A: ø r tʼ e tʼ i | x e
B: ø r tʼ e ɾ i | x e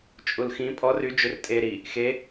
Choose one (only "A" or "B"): B